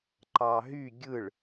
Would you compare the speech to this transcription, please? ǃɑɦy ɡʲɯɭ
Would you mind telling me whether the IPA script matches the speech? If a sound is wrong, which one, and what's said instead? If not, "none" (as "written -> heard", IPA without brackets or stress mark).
none